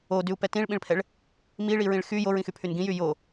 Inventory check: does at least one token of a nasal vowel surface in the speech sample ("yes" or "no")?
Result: yes